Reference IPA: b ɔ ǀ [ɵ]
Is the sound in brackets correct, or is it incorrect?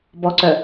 incorrect